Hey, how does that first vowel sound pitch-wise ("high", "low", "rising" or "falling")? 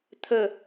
low